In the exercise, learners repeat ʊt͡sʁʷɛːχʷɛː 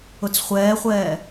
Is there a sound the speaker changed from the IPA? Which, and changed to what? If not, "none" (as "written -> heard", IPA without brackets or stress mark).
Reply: ʁʷ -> χʷ